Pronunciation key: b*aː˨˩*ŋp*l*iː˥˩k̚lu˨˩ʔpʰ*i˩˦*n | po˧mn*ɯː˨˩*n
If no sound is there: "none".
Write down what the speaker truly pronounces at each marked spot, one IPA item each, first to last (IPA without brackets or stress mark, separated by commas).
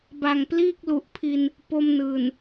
a˨˩, l, i˧, ɯː˨˩